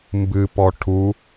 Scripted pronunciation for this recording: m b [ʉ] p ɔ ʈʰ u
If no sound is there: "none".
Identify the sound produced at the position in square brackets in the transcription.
ɨ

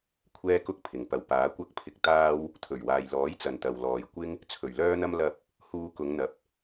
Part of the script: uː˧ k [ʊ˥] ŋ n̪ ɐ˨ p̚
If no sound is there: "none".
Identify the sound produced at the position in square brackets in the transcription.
ʊ˨˧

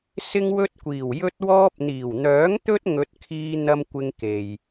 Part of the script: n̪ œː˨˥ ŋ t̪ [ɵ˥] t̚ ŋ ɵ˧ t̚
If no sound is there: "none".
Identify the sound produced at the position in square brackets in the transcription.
ɵ˥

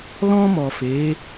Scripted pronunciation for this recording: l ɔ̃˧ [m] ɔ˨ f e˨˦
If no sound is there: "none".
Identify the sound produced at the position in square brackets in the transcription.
m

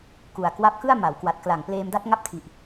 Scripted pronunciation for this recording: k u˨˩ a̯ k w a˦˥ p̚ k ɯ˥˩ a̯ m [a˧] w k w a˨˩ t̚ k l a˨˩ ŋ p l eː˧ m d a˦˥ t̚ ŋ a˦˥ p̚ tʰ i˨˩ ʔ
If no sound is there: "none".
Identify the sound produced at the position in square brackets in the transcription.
a˩˦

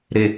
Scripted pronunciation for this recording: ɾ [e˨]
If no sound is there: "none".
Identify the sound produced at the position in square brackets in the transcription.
e˨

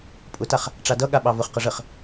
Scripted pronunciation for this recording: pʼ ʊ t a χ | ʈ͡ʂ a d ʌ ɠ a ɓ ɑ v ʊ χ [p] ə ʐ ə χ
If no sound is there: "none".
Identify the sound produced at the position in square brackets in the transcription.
q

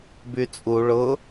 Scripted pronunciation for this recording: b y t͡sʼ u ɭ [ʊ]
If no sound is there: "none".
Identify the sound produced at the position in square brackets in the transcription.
ʊ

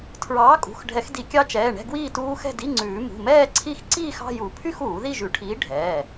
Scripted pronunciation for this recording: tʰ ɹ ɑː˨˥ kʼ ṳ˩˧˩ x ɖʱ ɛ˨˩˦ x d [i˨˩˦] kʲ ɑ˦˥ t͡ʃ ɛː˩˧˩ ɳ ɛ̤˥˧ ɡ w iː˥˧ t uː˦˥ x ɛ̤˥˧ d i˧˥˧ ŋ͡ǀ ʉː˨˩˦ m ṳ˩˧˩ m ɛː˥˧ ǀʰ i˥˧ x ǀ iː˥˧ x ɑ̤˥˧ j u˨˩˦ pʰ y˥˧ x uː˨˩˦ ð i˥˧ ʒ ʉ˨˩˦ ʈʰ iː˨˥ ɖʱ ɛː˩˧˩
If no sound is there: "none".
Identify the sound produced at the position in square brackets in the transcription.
i˨˩˦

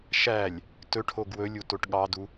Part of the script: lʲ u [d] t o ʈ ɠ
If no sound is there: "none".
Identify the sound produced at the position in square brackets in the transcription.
none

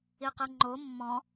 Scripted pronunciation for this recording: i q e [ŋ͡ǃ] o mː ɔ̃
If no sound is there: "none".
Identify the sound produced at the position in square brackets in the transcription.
ŋ͡ǃ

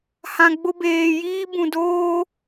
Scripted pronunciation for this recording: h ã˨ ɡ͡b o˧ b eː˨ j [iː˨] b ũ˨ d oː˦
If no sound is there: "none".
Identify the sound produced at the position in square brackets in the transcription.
iː˦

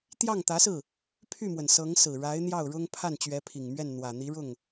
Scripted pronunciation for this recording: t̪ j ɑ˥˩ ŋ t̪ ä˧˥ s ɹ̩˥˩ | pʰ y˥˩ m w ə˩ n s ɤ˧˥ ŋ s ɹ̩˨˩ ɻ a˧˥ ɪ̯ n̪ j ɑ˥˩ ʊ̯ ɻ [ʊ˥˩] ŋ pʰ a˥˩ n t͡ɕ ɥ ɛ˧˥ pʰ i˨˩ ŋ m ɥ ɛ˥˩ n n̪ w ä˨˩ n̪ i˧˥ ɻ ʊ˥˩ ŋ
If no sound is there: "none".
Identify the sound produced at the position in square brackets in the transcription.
ʊ˥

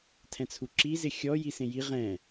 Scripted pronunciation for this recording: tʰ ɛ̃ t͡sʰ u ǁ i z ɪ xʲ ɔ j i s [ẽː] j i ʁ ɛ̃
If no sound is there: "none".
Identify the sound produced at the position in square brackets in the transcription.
ẽ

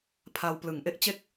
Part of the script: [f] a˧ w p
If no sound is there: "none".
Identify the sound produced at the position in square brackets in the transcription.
pʰ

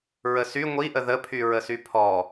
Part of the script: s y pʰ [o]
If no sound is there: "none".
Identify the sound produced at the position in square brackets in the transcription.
ɔ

